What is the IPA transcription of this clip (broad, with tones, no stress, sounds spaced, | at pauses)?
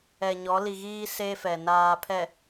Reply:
ɛ˨ ɲ ɔ˨˦ l i˨ ɣ iː˦ s e˦ f ɛ˨ n aː˨ pʰ ɛ˨